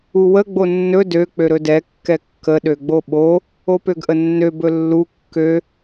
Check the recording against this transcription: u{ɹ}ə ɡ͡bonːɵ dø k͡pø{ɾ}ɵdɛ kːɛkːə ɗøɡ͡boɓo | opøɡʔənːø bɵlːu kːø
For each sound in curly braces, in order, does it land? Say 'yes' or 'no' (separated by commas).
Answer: no, yes